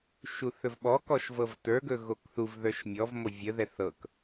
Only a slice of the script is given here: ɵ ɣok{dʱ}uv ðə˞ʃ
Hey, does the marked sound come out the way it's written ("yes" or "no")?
no